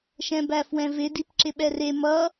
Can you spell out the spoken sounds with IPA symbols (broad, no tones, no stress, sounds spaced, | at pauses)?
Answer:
ʃ ɛ̃ b æ f w ɛ̃ v ɪ d i p ǁ ɪ ɓ ɛ r e m ʌ